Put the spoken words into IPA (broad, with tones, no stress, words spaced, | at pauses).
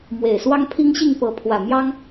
mwe˨˩ɪ̯ swɑ˥ŋpʰi˥ŋɕi˥˩ŋ pɤ˧˥pʰwä˨˩ mjɑ˥ŋ